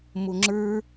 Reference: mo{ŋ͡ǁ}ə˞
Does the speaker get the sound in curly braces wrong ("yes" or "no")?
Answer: no